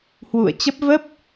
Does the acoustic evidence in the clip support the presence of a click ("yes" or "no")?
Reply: no